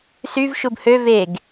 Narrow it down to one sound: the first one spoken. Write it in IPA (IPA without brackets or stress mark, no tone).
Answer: s